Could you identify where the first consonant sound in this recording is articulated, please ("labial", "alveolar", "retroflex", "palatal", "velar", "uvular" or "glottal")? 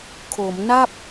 velar